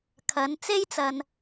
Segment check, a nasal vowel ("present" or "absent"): absent